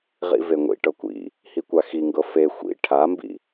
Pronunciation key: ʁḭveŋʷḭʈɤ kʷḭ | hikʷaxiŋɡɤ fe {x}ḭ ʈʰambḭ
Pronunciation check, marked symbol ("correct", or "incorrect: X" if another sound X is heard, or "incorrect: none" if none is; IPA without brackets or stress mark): incorrect: xʷ